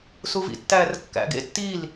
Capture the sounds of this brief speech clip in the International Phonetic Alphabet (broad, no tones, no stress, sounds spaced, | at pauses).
s u v ḭ tː æː r kː æ̰ ɡ ḛ tː i l